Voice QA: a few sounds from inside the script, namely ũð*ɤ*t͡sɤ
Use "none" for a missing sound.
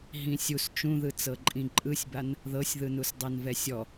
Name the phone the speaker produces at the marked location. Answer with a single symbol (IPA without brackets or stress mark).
ɯ